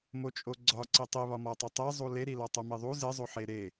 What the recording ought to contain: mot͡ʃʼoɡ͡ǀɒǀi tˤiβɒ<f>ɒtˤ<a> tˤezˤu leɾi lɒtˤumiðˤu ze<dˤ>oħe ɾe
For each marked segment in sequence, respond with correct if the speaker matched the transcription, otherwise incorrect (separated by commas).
incorrect, incorrect, incorrect